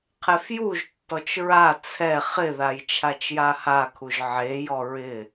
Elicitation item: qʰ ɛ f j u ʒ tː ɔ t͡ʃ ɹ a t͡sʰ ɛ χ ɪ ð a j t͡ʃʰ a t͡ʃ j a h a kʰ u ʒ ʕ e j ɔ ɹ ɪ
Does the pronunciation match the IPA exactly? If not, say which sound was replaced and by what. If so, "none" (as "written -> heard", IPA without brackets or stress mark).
none